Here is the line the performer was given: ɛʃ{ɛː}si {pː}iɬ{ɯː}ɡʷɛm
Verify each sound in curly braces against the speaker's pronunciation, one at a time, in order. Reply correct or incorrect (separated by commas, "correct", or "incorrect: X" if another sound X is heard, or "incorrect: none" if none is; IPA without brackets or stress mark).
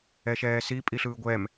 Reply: correct, incorrect: pʼ, correct